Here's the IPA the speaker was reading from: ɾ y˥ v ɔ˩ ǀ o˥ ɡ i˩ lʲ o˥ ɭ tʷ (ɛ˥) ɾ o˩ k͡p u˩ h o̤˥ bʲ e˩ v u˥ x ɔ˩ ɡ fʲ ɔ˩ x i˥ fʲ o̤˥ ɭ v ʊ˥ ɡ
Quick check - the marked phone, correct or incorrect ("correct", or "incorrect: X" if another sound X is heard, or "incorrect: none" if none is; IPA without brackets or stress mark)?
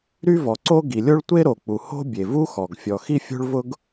incorrect: e˥